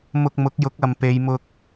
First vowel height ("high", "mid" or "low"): high